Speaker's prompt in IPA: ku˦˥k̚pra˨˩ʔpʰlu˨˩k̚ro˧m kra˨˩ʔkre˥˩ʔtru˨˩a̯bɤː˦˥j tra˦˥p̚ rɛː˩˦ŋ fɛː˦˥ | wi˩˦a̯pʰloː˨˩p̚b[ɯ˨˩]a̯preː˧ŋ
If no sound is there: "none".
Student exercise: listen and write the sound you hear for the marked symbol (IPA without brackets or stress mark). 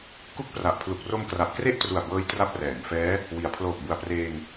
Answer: u˨˩